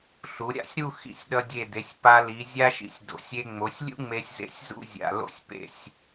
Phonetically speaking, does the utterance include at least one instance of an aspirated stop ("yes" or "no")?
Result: no